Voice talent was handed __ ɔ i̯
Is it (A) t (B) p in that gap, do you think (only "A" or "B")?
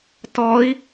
A